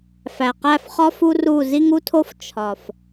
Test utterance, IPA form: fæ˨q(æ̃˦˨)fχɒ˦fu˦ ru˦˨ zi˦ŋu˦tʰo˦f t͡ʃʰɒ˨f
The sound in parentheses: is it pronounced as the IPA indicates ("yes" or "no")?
no